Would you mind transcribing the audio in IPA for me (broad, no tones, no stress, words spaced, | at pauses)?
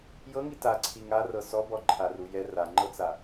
jɤŋi taǀʰi ŋarɤ sɔbɔ ǃʰarujɛ raŋ͡ǃɤt͡sa